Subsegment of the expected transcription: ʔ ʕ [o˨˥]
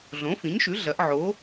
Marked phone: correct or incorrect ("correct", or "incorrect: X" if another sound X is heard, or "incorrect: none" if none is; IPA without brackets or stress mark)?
correct